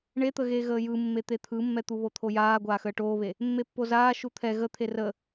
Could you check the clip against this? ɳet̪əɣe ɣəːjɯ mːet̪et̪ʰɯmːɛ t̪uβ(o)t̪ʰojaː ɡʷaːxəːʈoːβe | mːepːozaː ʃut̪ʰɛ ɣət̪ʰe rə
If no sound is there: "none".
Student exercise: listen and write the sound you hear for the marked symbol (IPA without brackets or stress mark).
o